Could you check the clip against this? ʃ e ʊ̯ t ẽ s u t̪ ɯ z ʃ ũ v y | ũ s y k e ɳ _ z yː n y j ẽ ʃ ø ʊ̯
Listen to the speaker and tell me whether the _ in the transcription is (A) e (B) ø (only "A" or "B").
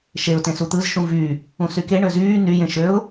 B